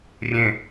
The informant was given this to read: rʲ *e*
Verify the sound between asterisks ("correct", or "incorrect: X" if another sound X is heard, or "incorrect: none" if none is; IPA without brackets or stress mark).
incorrect: ẽ